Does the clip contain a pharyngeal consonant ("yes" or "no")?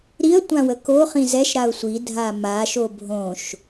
no